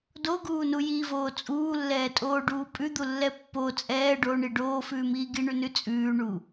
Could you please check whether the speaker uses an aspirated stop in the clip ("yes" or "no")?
no